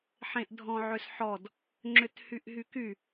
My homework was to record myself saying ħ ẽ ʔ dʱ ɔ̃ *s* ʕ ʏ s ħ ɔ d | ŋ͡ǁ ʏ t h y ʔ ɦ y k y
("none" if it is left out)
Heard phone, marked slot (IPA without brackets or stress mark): none